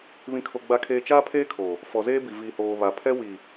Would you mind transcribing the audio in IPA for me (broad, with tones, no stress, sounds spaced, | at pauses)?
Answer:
β ĩ˨ kʰ o˨ ɡ͡b a˨ kʰ eː˨ t͡ʃ aː˦ pʰ eː˦ kʰ o˨ | f ɔ˨ z eː˦ b i˨ v i˨ h oː˨ β a˨ pʰ ɛ˦ w i˨